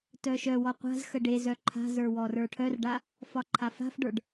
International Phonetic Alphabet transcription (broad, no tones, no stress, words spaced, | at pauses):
tœʃœwɔ qʷa̤zxə ɖezœ ǃʰa̤zə˞ wɔrə˞ʈʰœrɖa | fɒǃʰafa̤fɖə˞ɖ